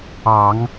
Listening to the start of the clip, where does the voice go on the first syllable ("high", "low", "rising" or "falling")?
low